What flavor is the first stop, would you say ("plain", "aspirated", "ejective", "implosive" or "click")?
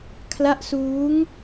aspirated